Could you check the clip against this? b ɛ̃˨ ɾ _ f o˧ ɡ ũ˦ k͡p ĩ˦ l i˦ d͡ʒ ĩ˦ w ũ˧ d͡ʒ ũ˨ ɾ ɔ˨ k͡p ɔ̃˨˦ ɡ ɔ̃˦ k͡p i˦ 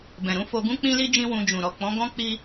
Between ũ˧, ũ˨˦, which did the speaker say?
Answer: ũ˨˦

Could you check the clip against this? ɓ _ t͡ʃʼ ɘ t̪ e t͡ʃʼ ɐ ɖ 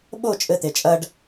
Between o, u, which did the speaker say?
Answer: o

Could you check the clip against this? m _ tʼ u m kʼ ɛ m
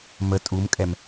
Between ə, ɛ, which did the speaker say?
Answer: ə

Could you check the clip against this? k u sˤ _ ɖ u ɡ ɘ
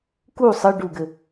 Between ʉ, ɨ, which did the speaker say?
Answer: ɨ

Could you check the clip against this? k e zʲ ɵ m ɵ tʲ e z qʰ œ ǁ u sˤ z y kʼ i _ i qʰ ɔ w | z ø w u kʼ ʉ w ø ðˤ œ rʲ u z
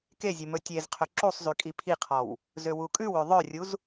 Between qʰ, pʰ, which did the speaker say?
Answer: pʰ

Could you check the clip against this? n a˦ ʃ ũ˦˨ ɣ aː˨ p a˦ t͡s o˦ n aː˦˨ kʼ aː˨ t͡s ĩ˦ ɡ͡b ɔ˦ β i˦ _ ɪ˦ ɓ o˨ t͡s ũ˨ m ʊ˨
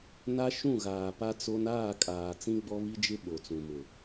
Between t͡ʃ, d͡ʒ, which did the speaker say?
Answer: d͡ʒ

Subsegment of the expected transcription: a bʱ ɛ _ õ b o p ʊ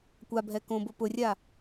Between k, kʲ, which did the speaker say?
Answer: k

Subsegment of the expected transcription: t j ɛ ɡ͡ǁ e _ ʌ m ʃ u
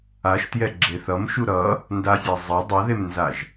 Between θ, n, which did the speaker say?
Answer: θ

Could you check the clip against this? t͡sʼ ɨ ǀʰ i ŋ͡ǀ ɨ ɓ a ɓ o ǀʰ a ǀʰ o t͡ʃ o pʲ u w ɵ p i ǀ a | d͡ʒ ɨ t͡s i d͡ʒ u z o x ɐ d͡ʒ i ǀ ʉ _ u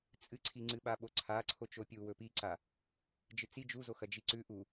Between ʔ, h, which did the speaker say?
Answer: ʔ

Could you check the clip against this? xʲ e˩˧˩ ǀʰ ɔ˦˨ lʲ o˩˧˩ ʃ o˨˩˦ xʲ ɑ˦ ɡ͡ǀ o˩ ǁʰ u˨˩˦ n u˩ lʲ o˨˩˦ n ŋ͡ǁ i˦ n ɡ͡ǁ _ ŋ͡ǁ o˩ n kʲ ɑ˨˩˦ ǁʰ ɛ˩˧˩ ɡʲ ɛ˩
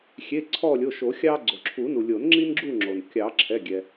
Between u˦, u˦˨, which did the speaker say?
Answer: u˦˨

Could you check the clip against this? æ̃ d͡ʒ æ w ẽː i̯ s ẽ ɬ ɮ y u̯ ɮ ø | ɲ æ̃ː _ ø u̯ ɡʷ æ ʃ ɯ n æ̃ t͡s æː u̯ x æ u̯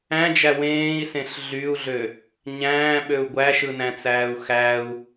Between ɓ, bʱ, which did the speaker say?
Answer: ɓ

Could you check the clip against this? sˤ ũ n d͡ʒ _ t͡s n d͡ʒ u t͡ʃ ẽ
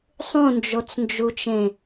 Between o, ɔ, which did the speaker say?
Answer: o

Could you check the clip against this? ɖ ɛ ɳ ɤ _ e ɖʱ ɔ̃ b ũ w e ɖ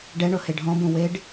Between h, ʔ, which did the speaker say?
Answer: h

